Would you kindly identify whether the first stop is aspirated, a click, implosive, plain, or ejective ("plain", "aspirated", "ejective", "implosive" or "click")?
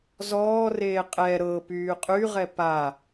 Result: ejective